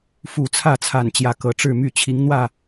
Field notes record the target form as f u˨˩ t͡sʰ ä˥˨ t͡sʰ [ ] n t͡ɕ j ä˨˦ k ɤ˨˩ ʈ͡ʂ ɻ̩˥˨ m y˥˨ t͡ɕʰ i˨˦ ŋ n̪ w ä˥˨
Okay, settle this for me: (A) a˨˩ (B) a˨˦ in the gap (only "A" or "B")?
A